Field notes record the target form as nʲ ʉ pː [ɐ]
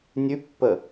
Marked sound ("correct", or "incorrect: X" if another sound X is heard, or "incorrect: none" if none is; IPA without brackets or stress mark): incorrect: ə